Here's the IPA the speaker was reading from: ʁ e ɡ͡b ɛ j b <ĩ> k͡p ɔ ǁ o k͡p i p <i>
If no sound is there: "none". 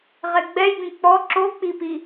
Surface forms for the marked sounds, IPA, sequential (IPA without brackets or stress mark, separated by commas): ĩ, i